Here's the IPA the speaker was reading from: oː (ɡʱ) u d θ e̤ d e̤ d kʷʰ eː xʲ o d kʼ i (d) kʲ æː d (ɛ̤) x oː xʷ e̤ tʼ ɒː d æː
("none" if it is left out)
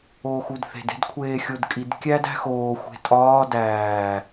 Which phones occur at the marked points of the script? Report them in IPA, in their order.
x, d, æ̤

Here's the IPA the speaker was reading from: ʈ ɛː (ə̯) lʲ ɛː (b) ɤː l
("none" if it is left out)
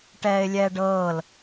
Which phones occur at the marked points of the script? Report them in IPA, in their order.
ɪ̯, ɖ

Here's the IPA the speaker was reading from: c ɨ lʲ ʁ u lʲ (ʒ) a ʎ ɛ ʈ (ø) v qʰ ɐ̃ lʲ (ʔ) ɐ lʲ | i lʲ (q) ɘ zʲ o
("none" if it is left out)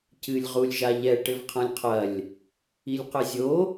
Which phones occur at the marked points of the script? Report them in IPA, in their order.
ʒ, ɘ, qʰ, q

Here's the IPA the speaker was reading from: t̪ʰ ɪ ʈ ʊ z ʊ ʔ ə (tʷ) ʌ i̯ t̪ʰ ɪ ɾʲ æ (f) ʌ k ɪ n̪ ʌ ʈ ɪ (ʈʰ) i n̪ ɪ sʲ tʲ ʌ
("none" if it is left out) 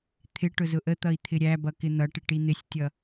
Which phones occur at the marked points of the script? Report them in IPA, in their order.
t̪, b, ʈ

